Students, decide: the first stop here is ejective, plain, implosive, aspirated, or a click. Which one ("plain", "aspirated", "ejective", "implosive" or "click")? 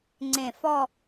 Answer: click